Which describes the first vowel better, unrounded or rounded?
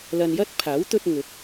unrounded